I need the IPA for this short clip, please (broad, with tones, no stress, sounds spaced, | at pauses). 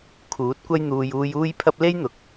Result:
kʰ uː˨˥ t̚ kʷ ɐ˥ j n̪ uː˧ j uː˧ j uː˥ j pʰ ɐ˥ p̚ l e˥ j n̪ ʊ˨ k̚